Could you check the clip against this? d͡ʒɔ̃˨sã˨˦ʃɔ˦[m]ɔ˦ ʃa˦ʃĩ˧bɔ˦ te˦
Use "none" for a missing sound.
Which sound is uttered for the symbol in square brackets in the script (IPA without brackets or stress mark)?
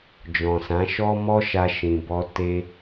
m